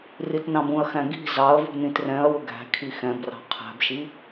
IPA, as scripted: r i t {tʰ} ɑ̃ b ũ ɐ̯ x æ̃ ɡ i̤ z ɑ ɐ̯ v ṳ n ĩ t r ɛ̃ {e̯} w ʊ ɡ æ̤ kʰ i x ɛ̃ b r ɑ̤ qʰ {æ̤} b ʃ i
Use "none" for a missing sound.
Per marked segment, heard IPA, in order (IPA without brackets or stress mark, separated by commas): n, ɐ̯, æ̤